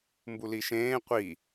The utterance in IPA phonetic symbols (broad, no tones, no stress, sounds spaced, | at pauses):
m b u l i ʃ ẽː qʷ i